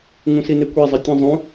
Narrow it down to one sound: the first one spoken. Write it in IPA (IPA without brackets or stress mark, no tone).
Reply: ŋ